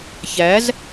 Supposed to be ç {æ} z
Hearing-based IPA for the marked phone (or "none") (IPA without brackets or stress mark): æ